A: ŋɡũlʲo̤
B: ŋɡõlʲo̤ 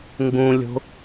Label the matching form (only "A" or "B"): A